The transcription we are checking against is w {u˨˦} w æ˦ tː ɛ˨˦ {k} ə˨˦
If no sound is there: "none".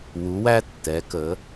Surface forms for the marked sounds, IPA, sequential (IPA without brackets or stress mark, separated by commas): u˨˦, k